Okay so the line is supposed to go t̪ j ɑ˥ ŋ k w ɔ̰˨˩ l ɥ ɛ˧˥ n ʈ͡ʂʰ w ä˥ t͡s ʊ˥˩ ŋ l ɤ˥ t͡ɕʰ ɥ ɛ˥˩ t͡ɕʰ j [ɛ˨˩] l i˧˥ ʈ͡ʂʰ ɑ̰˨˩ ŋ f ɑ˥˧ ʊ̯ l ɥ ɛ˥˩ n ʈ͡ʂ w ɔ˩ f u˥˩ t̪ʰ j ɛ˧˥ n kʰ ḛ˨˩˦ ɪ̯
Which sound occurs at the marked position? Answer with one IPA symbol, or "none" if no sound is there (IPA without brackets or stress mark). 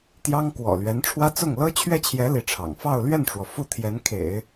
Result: ɛ˧˥